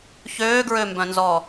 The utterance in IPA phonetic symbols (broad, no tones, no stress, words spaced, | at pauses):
çøːɡɹømbœ̃nzɔ